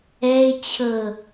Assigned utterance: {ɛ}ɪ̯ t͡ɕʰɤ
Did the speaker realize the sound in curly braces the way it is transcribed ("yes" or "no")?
yes